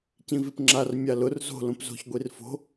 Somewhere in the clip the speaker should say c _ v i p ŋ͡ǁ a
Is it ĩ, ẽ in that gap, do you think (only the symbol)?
ĩ